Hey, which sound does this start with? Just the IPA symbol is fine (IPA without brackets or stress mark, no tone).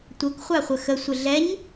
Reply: tʷ